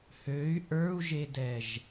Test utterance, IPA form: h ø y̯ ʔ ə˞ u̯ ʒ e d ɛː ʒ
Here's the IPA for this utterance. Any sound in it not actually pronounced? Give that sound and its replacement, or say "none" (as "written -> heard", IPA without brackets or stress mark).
none